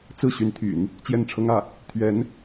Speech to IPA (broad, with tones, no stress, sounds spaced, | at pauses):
t͡s ɹ̩˥˩ ɕ y˧˥ n t̪ʰ y̰˨˩˦ n | t͡ɕ j ɛ˥˩ n ʈ͡ʂʰ ɤ˥ ŋ ä˥˩ | t̪ʰ ɥ ɛ˧˥ n